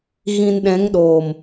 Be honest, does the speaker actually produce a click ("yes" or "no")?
no